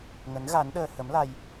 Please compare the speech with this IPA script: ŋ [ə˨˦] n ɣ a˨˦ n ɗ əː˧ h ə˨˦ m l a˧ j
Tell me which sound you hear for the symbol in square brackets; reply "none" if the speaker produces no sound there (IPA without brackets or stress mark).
ə˨˦